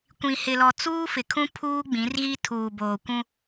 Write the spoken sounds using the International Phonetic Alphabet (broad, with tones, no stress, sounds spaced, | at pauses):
kʷ ĩ˨ h ɪ˨ l ɔ˨ t͡s uː˦ f ɪ˨ kʰ ũ˦ pʰ uː˦ ɡ͡b ĩ˨˦ r ɣ i˦ tʰ uː˨ b oː˨ kʷ ũ˦